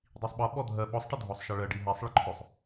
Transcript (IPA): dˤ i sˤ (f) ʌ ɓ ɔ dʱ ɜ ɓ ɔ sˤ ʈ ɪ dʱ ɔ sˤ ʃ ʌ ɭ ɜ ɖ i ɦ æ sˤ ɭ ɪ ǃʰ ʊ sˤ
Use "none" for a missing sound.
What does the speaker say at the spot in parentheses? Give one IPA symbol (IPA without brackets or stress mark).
ɓ